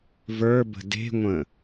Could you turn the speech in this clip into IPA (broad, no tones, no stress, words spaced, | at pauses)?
və˞bə̤ de̤ŋʷə̃